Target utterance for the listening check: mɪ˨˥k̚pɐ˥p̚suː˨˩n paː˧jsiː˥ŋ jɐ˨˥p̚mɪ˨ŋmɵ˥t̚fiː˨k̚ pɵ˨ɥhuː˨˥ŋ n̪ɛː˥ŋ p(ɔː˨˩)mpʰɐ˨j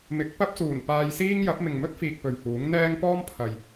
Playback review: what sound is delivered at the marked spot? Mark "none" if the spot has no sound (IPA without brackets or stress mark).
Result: ɔː˥